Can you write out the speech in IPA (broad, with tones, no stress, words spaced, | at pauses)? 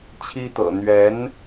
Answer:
t͡ɕʰi˥t̪ɤ̰˨˩ n̪ɥɛ˧˥n